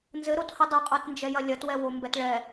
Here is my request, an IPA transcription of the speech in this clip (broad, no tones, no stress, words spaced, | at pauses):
nzɘɾotho dˤɐqʼotnd͡ʒɛjɐ lʲɐtwɛwombɛt ɭɛ